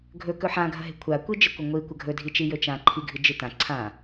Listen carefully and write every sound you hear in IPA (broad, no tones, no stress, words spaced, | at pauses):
ɡʱɵ kɵħãɡʱɐɦe̤ kʷʰakʷid͡ʒɨkʷɐ ŋʷi kʷɐɡʱɵdʱit͡ʃi jɵt͡ʃãǃʰiɡʱɨ d͡ʒɨtã ǀʰã